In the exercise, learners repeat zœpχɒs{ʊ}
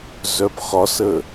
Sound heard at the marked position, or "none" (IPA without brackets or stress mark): ə